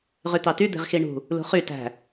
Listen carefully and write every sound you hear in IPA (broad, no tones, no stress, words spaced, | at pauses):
ʁyt̪ɑty d̪e̤ʁxiɳṳ | lṳχy tæ̤